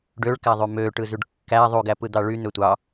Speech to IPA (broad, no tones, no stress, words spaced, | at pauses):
ɖøɭkæðˤy mø ʈɯzyɖkːæ ðˤuɡæ pɯd̪ɑɭy n̪øtʷɑ